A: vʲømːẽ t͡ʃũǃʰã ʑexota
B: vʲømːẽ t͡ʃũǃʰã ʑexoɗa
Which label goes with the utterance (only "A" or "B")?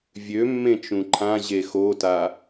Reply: A